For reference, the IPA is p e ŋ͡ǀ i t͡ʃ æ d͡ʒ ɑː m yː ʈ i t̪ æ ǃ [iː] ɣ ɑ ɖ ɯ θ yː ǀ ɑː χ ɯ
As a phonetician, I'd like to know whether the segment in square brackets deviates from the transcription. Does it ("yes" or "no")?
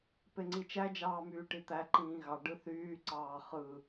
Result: yes